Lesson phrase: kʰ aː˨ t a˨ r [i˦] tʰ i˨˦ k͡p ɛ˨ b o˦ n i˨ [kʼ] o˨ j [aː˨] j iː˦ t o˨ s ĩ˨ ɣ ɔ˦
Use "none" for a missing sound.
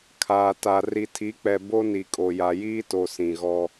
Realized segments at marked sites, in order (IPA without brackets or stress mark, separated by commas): i˨, kʼ, a˨